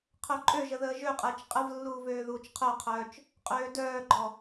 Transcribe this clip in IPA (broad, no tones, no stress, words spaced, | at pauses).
qʰœǃʼøʒə ðəːʒøqʼəːt͡ʃ qʼəvlːuːv øːðuːt͡ʃqʰœqʰœːt͡ʃ | qʼøːdœːɡ͡ǃɔ